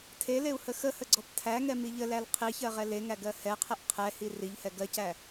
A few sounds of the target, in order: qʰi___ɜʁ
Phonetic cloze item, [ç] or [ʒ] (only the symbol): ç